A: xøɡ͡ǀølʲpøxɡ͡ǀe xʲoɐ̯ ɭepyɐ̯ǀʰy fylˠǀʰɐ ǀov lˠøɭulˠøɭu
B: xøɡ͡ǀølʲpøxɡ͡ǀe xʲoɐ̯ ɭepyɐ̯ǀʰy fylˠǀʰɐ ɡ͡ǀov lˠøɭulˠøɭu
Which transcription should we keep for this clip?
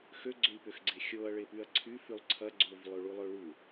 B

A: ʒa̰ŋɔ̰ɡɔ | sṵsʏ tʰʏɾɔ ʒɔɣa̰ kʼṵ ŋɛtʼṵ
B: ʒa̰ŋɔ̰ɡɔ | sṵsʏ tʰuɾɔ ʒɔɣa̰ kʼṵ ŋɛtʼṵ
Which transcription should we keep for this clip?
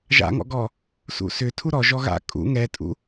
B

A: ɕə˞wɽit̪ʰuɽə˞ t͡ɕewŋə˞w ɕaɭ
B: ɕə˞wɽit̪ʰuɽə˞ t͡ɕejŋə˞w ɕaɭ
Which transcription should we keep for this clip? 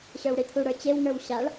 A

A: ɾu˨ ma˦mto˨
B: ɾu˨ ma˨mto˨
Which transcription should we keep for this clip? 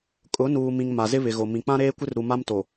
A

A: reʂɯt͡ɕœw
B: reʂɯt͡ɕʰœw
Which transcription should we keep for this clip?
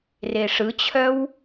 B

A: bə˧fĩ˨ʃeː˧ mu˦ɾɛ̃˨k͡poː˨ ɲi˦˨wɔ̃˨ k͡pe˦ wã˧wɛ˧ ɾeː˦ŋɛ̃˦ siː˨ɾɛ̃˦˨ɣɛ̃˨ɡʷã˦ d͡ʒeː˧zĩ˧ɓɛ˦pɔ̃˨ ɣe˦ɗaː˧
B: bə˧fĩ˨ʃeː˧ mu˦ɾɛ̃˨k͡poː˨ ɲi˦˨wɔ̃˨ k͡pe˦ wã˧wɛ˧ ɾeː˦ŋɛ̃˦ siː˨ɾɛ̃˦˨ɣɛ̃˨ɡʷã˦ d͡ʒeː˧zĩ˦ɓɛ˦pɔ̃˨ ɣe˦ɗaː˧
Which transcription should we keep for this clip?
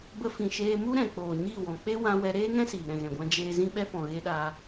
B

